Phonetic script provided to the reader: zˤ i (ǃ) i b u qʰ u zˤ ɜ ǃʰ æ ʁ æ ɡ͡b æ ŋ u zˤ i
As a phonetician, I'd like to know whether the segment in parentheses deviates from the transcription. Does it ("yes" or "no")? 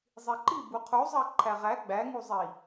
no